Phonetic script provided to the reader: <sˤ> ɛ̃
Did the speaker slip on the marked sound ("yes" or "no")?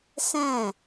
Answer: yes